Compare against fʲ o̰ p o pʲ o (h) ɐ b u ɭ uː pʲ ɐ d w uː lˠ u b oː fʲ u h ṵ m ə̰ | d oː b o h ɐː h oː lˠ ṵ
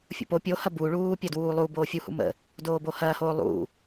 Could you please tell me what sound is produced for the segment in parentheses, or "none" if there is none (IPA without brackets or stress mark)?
h